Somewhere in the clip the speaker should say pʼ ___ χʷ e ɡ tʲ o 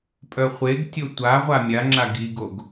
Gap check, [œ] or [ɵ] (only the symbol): œ